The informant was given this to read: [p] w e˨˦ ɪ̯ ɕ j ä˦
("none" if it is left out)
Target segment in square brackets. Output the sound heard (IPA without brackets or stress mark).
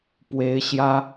p